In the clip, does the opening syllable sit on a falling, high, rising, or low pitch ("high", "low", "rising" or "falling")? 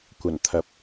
low